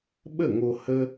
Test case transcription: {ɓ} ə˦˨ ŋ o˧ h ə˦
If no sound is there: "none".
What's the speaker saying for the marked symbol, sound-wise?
ɓ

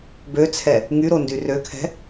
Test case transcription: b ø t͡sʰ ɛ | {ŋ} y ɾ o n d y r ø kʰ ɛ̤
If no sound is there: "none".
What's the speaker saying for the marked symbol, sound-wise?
ŋ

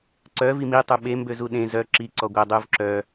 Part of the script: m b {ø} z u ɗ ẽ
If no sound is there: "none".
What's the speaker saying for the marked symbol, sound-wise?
ø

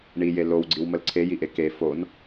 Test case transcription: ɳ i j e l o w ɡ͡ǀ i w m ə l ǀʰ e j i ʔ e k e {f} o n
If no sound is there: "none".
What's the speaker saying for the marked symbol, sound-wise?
f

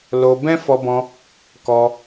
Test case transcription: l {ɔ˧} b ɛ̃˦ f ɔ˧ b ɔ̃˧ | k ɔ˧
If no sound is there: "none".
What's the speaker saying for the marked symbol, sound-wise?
o˧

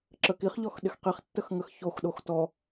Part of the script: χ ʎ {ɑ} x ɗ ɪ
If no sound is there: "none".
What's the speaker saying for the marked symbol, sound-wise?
ɔ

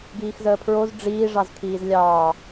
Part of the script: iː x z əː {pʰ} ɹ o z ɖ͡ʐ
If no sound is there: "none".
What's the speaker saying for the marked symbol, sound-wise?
pʰ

